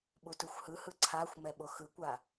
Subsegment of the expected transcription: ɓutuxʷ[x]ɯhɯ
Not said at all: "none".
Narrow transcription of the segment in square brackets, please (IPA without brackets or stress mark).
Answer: h